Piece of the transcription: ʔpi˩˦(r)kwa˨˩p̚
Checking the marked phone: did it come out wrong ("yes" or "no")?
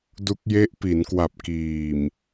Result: yes